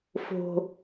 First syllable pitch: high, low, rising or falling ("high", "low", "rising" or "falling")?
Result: low